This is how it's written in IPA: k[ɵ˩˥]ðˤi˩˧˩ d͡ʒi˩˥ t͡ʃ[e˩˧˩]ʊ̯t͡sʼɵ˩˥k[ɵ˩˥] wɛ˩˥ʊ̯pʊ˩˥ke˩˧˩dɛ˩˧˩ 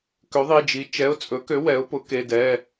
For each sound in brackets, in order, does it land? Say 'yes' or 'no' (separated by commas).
no, no, no